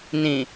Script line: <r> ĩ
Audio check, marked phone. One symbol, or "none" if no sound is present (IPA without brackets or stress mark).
n